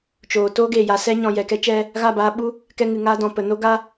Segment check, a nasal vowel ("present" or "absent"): present